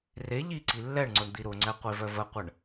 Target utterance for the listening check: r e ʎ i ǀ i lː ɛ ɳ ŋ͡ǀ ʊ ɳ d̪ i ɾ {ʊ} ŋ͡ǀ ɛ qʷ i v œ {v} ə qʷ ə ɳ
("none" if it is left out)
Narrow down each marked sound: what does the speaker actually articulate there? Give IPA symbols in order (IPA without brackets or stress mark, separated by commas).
ʊ, v